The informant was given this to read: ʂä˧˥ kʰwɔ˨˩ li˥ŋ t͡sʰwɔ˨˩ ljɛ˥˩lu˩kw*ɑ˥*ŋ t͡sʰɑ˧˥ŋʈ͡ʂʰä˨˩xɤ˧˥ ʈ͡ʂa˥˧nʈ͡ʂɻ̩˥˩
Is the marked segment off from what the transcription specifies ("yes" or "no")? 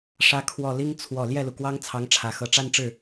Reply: no